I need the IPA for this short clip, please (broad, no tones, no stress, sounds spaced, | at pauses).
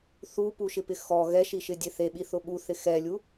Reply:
θ u p u ʃ ɪ p ɪ x ɔ ɣ ɛ ʃ i ʃ ɪ dʲ e θ e ɓ i θ ʊ ɓ u θ ɪ x ɛ lʲ u